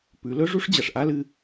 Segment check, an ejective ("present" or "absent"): absent